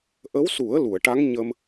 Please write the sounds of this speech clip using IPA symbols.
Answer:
ʔ ə˧˥ w s u˨˩˦ ə̯ l u˨˩˨ ə̯ ʈ a˧˥ ŋ ɲ ə˧ m

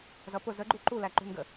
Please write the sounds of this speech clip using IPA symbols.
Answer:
z ʌ p ʊ z ə ɡ͡ǃ u ǃ u l æ ǃ ṳ n ɡ ə

